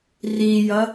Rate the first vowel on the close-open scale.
close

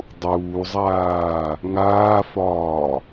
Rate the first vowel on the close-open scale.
close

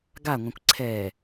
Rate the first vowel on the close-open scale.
open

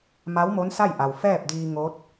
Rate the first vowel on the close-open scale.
open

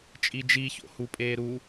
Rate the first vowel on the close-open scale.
close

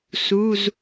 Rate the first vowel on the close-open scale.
close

